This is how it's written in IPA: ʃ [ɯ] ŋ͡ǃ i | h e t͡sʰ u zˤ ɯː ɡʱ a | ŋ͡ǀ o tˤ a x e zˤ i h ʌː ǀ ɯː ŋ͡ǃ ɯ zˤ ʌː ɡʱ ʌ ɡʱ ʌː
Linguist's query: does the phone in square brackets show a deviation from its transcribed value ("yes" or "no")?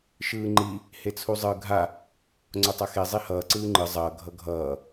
yes